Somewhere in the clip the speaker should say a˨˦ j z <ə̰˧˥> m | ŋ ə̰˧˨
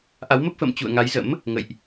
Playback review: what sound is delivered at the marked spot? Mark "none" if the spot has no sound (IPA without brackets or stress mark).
ə̰˧˥